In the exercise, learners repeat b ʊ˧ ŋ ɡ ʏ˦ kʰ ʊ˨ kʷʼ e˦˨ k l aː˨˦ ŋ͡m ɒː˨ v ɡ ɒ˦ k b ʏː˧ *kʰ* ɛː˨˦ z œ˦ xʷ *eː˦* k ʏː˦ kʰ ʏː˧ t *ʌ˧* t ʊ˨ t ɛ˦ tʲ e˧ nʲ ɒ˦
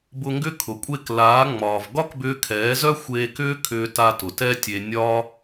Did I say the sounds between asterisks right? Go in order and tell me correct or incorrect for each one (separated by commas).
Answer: correct, incorrect, incorrect